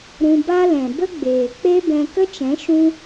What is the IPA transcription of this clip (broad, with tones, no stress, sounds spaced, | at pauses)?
ɾ ũ˧ b a˦ l ɛ̃˨ b ə˦ ɡ͡b eː˨ k͡p e˦ b ɛ̃˧ k ə˦ t͡ʃ ɛ̃˨˦ ʃ ũ˦